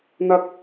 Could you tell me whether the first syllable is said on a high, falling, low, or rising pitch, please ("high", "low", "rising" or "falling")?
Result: high